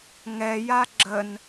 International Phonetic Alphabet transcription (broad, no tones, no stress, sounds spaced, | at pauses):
ŋ ɛ j a ɡ͡ǁ ə n